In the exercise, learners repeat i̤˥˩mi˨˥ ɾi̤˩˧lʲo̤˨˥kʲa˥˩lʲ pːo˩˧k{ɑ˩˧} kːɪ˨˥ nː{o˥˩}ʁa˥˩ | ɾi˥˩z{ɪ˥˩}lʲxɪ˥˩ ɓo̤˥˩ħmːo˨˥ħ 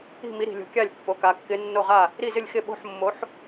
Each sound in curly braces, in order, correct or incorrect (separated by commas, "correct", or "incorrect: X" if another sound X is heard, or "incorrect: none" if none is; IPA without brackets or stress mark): incorrect: a˩˧, correct, correct